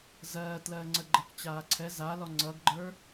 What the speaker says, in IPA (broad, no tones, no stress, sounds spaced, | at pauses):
z ɜː t l ɜː ŋ͡ǀ ə ɡ͡ǃ ə k t͡ɕ aː ǀʰ ɛ z a l ɔ ŋ͡ǀ ʌ ɡ ɡ͡ǃ ə˞